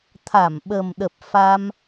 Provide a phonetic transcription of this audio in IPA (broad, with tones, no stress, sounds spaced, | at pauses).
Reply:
t̪ʰ a˧˩ m ɓ ə˨˩ m ɗ ə˨˩ p̚ f a˧ m